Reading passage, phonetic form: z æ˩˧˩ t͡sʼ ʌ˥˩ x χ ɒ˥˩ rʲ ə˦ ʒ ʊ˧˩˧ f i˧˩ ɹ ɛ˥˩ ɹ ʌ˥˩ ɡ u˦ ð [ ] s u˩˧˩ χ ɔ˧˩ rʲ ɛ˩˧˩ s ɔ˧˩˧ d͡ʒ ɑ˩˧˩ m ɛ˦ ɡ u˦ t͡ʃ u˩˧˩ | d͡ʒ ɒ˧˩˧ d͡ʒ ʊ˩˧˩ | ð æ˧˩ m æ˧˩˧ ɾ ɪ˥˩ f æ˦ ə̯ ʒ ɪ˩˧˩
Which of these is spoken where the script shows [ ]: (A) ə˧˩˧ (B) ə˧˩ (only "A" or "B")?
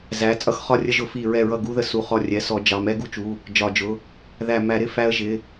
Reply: B